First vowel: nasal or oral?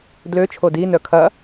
oral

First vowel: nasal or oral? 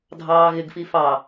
oral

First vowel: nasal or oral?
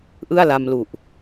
oral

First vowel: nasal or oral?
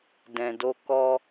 nasal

